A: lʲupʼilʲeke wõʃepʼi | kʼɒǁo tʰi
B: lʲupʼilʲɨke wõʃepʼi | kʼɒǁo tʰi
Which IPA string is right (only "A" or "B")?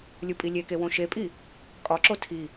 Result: A